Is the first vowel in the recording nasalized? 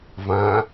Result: yes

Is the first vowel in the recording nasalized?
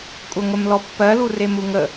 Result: no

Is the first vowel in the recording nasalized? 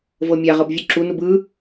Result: no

